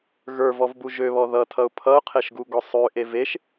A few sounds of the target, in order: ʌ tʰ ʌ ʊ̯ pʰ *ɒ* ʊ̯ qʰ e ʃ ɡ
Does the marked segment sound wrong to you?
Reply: yes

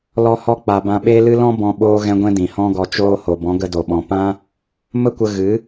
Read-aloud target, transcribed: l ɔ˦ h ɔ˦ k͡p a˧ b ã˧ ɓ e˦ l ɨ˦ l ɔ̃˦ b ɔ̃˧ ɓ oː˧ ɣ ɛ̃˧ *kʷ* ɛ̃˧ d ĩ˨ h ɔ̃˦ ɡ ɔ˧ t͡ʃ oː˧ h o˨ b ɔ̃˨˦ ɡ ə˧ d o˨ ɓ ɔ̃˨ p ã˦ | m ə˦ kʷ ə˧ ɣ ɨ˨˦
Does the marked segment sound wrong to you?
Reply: yes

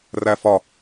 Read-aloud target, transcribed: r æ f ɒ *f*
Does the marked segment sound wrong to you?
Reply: yes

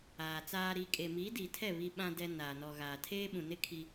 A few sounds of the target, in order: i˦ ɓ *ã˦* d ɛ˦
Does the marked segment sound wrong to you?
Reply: no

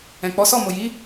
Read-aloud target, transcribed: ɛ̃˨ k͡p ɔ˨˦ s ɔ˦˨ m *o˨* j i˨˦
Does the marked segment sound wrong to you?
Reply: no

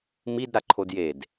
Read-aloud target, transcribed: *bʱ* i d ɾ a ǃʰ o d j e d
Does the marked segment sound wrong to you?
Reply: yes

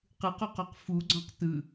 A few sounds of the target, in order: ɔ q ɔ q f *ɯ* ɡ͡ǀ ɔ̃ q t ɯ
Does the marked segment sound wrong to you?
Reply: yes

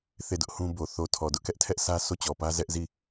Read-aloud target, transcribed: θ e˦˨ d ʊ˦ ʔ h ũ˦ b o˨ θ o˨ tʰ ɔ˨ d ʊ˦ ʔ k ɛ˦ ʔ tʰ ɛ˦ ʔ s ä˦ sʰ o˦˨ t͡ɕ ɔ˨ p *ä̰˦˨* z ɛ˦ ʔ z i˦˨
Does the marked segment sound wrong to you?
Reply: yes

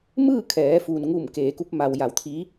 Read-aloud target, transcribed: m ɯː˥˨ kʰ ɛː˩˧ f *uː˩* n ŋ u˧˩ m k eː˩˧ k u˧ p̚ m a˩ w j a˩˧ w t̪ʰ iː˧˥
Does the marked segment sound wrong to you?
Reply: no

